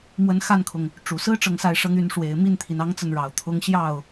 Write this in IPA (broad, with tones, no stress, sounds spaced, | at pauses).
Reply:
m w ə˧˥ n x a˥˩ n kʰ ʊ˩ ŋ | ʈ͡ʂ u˨˩ s ɹ̩˥ ʈ͡ʂ ɤ˥˧ ŋ s a˥˩ ɪ̯ ʂ ɤ˥ ŋ y˧˥ n ʂ w e˨˩ ɪ̯ m i˥˩ n t̪ʰ i˩ n ɑ˥ ŋ t͡s ə˥˩ n ɻ ɑ˨˩ ʊ̯ t̪ʰ ʊ˥ ŋ ɕ j ɑ˥˩ ʊ̯